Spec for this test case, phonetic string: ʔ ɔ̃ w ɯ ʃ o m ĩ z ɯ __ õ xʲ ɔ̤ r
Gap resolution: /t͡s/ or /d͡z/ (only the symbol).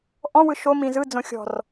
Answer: d͡z